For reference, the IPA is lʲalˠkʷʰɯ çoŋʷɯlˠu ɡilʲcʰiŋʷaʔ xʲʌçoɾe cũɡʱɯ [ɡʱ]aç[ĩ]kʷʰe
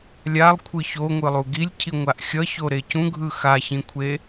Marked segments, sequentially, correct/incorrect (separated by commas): incorrect, correct